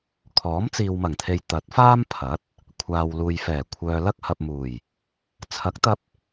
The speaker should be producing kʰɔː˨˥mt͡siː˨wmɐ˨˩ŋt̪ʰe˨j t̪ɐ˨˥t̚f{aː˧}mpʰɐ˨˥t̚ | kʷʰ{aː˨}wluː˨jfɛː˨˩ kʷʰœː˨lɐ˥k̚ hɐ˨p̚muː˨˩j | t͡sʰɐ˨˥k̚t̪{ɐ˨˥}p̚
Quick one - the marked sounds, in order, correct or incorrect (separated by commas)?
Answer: incorrect, correct, incorrect